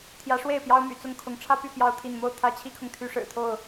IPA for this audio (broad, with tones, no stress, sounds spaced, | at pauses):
t̪ʰ j ä˨˦ ʂ w e˥˨ ɪ̯ p j ɑ˦ ʊ̯ m y̰˨˩ t͡s ʊ˥˨ ŋ kʰ ʊ˨˦ ŋ ʈ͡ʂʰ ä˦ p y˥˨ p j ɑ˥˨ ʊ̯ t̪ʰ i˥˨ n m o˥˨ ʊ̯ t̪ʰ ä˦ t͡ɕʰ i˦ kʰ ʊ˨ ŋ t̪ʰ y˦ ʂ ɻ̩˨˩ t̪ʰ o˥˨ ʊ̯